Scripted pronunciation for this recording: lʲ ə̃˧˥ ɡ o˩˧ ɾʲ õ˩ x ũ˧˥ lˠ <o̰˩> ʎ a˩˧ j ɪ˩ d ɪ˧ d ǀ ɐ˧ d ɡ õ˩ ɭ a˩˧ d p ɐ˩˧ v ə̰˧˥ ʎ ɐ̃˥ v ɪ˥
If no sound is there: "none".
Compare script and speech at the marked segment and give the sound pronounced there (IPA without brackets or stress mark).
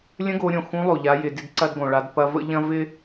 o˩